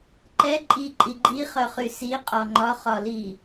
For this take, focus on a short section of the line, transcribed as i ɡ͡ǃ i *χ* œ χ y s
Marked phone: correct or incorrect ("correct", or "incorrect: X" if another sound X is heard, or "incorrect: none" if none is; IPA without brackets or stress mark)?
correct